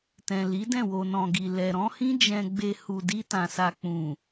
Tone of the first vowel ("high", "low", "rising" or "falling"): low